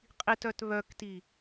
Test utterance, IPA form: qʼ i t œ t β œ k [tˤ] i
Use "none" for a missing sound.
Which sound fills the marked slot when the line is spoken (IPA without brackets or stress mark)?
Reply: t